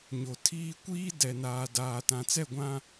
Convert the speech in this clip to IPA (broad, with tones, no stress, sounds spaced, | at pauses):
ɲ o˨ tʰ iː˦ kʷ iː˦ d ɛ˨ n aː˨ d aː˨ t ã˨ t͡s ɛ˦˨ ɡʷ ã˦